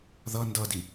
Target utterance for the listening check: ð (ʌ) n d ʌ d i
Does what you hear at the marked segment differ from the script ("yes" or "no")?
no